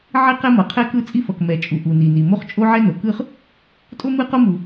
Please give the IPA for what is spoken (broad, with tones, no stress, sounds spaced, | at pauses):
ʕ i˥ q ɛ˥ m ʌ˩ qʰ ɛ˥ k ɯ˥ t͡sʼ i˥ f ʌ˩ k m ɛ˩ t͡ʃʼ u˩ ʔ u˩ n i˩ n i˩ m o˥ χ t͡ʃʼ o˥ ʕ ɛ˥ n o˩ k ɯ˥ χ | tʼ o˥ m ɯ˥ q o˥ m u˩